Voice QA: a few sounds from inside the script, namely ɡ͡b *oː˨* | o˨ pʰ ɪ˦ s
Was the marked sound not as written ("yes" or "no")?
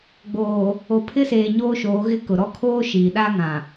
no